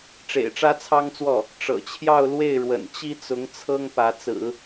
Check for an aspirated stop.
present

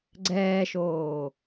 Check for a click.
present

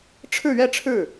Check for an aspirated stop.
present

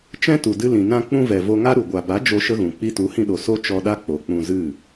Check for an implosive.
present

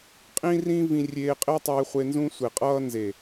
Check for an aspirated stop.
absent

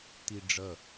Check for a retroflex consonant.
present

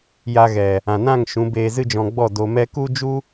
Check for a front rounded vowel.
absent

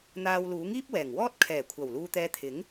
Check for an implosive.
absent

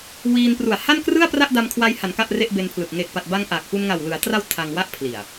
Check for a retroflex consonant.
absent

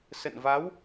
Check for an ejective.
absent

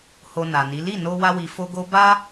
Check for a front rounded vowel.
absent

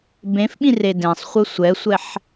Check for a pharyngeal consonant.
present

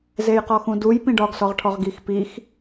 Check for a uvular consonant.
present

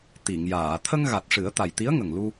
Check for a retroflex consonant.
present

